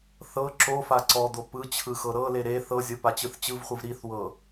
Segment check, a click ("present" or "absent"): present